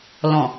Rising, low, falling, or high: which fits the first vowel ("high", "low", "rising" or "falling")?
low